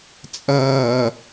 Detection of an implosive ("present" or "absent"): absent